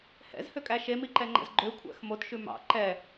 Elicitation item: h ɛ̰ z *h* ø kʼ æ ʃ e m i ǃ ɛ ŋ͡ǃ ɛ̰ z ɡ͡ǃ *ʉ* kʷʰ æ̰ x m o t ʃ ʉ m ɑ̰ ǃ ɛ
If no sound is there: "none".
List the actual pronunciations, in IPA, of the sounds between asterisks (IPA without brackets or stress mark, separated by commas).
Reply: h, ø